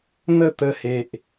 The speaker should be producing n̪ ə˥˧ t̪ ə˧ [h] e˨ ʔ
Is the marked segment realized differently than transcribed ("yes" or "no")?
no